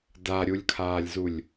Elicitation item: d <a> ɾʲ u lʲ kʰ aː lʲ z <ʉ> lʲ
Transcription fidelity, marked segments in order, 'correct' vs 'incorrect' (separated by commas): correct, incorrect